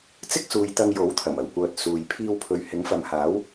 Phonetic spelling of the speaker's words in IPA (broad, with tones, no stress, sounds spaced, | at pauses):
t͡s ɪ˥ k̚ s uː˨ j t̪ ɐ˧ ŋ j o˨˥ w t̪ʰ ɐ˨˩ m ɐ˨˩ w kʷ œː˨ t̚ s uː˨ j pʰ iː˧ w pʰ ɵ˨ ɥ h ɪ˨˥ ŋ f ɐ˨ m h aː˨˥ w